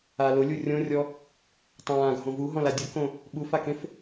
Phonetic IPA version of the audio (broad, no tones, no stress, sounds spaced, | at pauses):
a l ʊ lʲ u rʲ õ rʲ ɔ | tˤ ãː ɡʱ õ v u ɦ ɔ̃ l a dʲ ʊ k õ | ɓ u f a k ẽ f